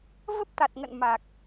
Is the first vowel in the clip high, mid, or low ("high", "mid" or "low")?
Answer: mid